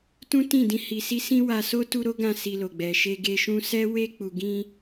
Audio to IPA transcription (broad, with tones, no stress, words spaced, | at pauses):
tũ˦tĩ˦˨dĩ˧ hi˨si˧ sĩ˦wa˧so˦ tu˦ɾo˦ɡã˦˨ si˧lo˨ɡ͡bɛ˨ ʃe˧ɡe˧ʃũ˦ sɛ˦ we˧k͡pu˨ɡĩ˧